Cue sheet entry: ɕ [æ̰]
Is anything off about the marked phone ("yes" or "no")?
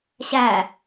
yes